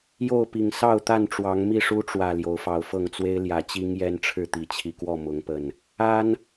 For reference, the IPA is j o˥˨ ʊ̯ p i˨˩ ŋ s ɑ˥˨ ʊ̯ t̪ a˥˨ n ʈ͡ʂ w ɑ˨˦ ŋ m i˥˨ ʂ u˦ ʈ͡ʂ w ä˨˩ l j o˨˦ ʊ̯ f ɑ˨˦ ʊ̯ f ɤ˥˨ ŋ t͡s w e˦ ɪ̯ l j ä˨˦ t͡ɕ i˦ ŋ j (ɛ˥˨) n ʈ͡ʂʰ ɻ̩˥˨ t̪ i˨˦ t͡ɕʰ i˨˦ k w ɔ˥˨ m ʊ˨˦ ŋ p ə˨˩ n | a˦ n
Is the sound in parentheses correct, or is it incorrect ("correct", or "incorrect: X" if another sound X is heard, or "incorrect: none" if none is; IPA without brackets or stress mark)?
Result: incorrect: ɛ˦